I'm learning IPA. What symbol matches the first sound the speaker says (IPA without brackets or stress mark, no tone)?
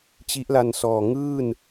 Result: t͡ɕ